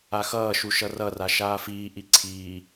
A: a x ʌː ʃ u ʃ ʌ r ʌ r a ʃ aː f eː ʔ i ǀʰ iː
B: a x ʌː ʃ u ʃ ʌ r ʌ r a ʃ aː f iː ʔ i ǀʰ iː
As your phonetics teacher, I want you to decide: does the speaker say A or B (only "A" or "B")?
B